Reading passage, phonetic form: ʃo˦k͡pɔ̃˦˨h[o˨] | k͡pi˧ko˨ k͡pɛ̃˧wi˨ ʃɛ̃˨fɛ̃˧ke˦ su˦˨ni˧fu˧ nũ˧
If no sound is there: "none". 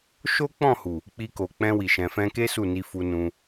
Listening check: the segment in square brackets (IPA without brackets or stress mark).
u˨